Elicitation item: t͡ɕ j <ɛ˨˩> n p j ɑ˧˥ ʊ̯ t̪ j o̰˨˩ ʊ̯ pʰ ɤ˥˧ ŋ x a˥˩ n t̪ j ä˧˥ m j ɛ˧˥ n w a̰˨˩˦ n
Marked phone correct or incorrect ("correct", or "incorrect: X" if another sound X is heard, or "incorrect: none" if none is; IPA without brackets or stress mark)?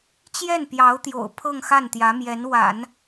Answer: incorrect: ɛ˥˩